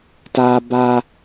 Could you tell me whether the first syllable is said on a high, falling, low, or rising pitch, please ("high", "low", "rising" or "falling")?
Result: high